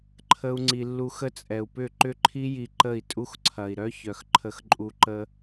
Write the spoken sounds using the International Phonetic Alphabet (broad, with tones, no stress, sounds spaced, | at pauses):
ǃʰ ə˦ u̯ ŋ͡ǀ i˧ lː u˧ x ə˦ t͡sʼ ɛ˨ u̯ p ʏ˦˨ ǃ ʏ˦ ǃʰ i˦ j i˧ ǃ ə˦˨ i̯ tʼ u˦ x ǀʰ ɐ˨ i̯ ɾ œ˦ ç œ˨ x ǃʰ ə˧ x ǃʼ u˧ ǃ ə˧